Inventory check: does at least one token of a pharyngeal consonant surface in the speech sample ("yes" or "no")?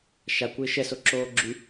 no